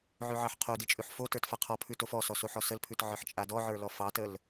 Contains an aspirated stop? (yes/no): yes